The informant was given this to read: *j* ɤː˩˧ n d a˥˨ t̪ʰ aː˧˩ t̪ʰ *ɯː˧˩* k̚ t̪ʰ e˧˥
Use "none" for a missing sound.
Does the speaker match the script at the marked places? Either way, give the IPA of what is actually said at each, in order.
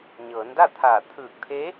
ɲ, ɯː˧˩

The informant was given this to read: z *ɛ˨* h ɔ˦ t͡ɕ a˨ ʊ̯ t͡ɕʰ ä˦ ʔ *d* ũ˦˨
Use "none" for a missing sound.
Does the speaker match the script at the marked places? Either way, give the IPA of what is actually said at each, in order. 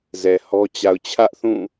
ɛ˨, θ

